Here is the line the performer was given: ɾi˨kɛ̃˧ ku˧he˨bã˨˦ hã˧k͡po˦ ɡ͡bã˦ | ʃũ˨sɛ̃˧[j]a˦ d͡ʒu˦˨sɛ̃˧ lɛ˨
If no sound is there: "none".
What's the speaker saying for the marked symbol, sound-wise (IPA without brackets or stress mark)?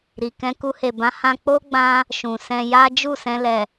j